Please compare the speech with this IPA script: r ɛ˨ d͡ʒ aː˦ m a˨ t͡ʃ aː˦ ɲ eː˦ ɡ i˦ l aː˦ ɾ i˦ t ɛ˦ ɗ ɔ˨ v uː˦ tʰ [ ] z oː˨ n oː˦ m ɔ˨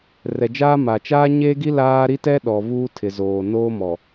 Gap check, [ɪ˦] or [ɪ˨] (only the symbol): ɪ˨